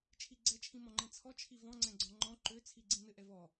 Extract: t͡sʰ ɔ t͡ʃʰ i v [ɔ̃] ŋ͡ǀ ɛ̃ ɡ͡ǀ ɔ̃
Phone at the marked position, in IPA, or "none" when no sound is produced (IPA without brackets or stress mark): ɔ̃